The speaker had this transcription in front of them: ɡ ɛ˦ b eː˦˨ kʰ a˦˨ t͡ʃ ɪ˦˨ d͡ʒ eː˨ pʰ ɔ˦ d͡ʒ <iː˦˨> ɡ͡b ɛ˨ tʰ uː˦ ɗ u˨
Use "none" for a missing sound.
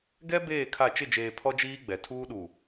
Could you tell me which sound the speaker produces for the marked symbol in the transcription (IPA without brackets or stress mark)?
iː˦